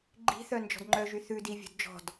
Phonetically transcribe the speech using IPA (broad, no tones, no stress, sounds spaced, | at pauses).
ɡ͡ǃ i̤ θ œ n d͡ʒ ɔ̤ d ŋ͡ǃ œ ʒ y θ ʉ d i vʲ ṳ d d͡ʒ ɔ̤ d